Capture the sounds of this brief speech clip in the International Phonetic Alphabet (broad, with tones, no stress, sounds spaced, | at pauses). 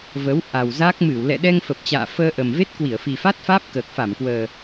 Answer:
v ə˨˦ w ʔ a˨˩ w z a˦˥ k̚ m ɨ˧˩ w l ɛ̰˧˨ ɗ ɛ˧ ŋ f ə˨˩ p̚ t͡ɕ a̰ː˧˨ f əː˧ ʔ ə˨˩ m v e˦˥ t̚ k w i˧˩ ə̯ f i˨˩ f a˦˥ t̚ f aː˦˥ p̚ k əː˨˩ k̚ f a˧˩ m k w əː˨˩